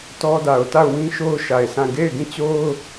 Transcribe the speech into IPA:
tɔ˦ da˨ʊ̯ta˦˨ʊ̯wĩ˦ʃo˦ʊ̯ ʃa˨ɪ̯sʰã˦˨ ɡe˦˨ɪ̯ɡĩ˦˨t͡ɕo˦ʊ̯

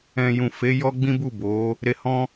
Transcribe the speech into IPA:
ɛ̃˨ jũ˨fe˨˦ jɔ˦ɡ͡bĩ˦ bu˦˨bo˨˦ | ɾe˧hɔ̃˦

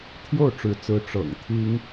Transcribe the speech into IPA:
t̪ʰjo˥˩ʊ̯ʈ͡ʂɻ̩˧˥t͡sɹ̩˧˥ ʈ͡ʂɤ̰˨˩ŋ t̪ʰi˥ŋ

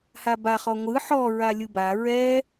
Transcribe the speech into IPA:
haba χɔŋʷɯ ħɔ ɹalʲɯba ɹɛ

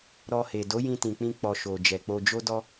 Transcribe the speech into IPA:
ɾɔ˧he˨ do˨˦jĩ˧tĩ˨k͡pĩ˧ k͡pɔ˨ ʃo˨ d͡ʒɛ˨k͡po˧d͡ʒo˦dɔ˦

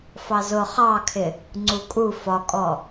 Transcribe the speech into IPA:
fɑzʊ χɑkʰɪ | ŋ͡ǀukʼu fɒkʼɔ

